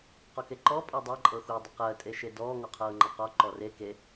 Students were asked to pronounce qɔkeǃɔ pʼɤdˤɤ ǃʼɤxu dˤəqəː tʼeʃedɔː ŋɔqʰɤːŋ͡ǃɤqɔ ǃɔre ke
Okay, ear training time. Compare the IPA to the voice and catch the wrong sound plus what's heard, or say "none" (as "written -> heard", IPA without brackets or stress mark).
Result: none